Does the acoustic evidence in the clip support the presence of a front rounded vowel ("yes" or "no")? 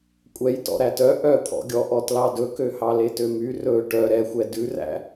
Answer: yes